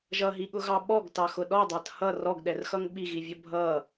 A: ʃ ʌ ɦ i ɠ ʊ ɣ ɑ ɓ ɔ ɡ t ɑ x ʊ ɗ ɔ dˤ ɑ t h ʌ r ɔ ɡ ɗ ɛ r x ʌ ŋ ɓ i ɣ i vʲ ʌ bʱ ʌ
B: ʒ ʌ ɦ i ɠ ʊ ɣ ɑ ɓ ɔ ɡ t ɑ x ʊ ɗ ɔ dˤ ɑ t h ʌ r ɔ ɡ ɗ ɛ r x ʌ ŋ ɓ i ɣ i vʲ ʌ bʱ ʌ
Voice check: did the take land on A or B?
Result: B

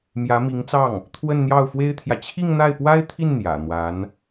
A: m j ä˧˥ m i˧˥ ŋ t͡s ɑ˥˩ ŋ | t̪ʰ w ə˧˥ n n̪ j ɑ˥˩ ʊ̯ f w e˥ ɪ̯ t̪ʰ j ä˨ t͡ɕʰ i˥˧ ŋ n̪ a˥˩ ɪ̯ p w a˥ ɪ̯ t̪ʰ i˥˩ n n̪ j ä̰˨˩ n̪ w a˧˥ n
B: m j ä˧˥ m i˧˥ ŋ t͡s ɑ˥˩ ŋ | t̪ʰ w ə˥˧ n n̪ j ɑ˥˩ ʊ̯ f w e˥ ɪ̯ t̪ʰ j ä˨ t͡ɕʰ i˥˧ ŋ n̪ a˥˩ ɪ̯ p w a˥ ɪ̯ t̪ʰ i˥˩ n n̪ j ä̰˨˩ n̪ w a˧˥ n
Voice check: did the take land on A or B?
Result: B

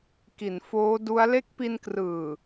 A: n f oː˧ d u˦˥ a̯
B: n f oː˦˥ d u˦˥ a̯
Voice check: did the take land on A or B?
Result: B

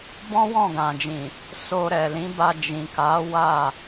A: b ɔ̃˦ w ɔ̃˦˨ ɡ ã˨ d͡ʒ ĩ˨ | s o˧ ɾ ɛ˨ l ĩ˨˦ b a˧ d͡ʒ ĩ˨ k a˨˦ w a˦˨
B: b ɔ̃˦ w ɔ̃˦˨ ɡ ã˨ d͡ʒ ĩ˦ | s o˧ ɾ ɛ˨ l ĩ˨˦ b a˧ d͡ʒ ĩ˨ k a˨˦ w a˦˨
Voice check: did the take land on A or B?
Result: A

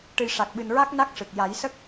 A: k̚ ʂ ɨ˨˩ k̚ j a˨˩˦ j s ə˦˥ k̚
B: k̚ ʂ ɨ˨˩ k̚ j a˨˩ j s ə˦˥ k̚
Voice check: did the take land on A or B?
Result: A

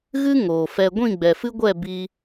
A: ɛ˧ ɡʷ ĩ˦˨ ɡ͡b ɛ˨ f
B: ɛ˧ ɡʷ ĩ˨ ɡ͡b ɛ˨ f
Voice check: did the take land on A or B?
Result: A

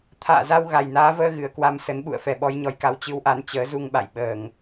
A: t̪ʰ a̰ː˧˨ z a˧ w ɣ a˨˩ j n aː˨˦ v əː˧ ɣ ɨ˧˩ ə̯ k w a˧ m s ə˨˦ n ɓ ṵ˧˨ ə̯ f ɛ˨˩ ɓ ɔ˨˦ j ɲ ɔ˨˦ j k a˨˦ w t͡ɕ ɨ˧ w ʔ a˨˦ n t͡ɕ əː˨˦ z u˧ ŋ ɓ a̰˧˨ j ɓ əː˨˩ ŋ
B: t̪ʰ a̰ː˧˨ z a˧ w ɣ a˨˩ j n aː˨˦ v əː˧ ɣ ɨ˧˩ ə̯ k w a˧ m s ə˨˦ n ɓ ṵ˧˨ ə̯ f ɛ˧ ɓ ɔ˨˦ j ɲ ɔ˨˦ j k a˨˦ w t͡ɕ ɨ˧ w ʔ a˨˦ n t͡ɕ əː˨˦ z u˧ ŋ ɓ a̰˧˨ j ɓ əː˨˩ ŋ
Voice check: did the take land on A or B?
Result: A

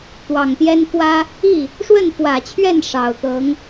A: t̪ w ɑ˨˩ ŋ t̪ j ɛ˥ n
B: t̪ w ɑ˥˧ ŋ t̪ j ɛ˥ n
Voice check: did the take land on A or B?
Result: A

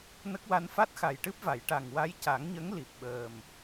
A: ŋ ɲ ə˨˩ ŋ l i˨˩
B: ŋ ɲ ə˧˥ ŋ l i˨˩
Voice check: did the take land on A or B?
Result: B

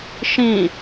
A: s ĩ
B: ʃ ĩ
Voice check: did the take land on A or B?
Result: B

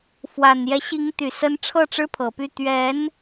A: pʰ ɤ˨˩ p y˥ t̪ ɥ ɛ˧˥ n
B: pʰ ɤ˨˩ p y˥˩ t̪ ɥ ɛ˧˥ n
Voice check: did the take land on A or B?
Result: B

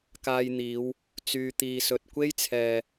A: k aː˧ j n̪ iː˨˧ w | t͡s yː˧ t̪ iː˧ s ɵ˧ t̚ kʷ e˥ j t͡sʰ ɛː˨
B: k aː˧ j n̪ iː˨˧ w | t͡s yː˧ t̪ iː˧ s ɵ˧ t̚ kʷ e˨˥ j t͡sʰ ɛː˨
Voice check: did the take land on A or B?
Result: A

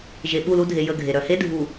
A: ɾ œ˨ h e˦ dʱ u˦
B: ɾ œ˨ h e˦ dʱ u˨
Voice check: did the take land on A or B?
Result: B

